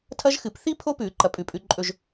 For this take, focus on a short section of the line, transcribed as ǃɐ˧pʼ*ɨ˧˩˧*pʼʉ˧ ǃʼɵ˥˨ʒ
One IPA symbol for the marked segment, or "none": ʉ˧˩˧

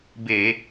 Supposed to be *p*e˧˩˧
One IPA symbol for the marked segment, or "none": b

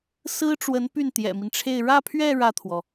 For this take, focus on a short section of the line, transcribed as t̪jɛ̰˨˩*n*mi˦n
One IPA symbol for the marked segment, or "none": none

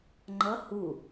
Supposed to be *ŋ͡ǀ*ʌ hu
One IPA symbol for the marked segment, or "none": ŋ͡ǃ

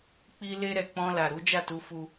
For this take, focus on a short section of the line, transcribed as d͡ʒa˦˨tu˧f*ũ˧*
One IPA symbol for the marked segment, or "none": u˧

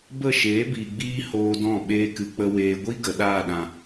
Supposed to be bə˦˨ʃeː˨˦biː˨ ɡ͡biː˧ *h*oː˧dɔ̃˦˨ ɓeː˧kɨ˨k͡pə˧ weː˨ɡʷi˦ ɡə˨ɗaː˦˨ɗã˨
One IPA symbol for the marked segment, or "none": h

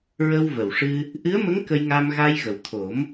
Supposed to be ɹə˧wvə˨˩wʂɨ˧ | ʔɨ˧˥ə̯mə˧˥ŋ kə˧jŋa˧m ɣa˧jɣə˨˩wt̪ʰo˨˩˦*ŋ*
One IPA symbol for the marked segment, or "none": m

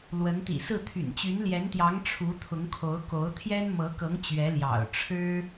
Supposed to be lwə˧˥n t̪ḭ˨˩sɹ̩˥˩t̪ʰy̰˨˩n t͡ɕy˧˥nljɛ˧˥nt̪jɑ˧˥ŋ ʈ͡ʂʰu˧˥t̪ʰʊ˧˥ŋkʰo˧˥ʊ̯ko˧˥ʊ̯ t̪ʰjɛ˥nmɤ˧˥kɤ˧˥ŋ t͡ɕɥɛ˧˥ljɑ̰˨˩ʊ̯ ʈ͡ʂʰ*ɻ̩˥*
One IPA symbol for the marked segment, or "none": ɻ̩˥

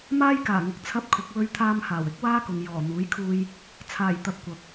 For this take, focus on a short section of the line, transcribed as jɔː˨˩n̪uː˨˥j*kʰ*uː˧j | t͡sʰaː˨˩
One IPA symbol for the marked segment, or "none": kʰ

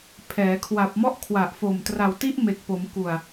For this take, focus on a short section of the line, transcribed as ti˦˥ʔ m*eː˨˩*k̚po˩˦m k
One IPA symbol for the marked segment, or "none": e˨˩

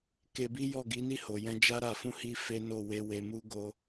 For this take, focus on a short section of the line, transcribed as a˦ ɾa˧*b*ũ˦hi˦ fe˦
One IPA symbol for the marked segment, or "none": f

